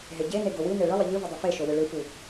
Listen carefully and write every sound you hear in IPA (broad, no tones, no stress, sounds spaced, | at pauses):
ɦ e ɟ e n e ɡ o w ɨ n e ɭ ɨ lˠ ɨ ʎ ɨ v ɨ dˤ ɨ f e ʃ o w ɨ ɭ ɨ f u